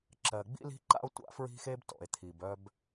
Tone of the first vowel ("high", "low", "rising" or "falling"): low